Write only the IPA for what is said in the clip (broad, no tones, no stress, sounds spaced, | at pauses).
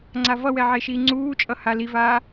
ŋ͡ǀ a v ʌ w ɛ ʕ e ʃ iː ŋ͡ǀ uː t͡ʃʼ ʌ h a l i v aː